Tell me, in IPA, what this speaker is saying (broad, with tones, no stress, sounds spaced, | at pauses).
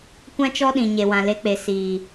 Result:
kʷ ã˦ t͡ʃ ɔ˦ ɗ ĩ˨ ɲ e˨ w ã˨ l e˧ k͡p e˨ s iː˨